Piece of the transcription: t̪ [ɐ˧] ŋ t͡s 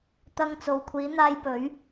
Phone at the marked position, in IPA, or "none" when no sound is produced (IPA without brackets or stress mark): ɐ˧